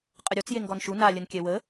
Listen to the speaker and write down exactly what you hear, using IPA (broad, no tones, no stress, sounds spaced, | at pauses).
qʼ ə ɾʲ ɔ t͡s j e ŋ ɡ ɔ n ʃ u n a lʲ ə n kʲ ɛ w ə